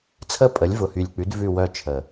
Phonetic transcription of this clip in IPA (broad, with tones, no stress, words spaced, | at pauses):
t͡sʰə˦˨ pʼə˩˥lʲvʊ˨˩hy˨˩lʲk͡pʉ˩˥d vʉ˦˨wœ˦˨t͡ʃʰə˨˩